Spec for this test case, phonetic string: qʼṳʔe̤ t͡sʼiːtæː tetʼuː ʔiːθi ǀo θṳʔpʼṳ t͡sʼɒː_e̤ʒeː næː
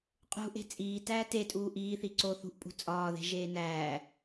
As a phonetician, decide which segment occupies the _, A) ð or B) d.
A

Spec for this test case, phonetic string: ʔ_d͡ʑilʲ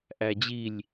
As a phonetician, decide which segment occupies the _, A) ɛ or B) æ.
B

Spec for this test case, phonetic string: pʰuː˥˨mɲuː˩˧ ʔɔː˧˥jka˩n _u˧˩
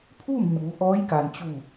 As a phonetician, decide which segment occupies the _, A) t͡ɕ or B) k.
A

